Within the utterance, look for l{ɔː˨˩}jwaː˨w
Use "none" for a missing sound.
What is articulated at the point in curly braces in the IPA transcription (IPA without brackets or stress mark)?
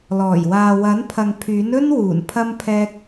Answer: ɔː˨˩